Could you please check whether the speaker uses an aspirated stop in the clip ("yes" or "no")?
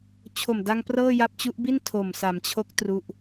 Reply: yes